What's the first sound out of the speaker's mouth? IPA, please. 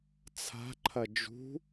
t͡sʰ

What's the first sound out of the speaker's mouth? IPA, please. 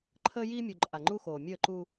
ǃʰ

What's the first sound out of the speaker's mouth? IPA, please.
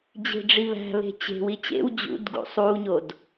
d͡ʑ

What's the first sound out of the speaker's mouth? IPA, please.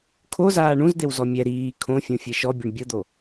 kʰ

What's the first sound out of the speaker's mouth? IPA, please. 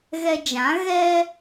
ɣ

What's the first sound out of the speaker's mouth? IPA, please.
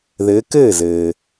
ð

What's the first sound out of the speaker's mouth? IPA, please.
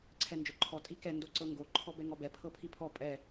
ǀʰ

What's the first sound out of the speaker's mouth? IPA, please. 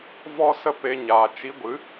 v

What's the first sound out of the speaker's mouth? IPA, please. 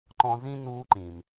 ǃ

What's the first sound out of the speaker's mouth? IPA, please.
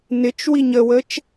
n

